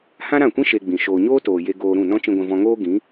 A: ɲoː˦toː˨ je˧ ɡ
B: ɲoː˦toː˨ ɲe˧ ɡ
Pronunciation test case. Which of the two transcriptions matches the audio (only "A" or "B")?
A